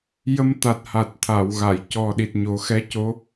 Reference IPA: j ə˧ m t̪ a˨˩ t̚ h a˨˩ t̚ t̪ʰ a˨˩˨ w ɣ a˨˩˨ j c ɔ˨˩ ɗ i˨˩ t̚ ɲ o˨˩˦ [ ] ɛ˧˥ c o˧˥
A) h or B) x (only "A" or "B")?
B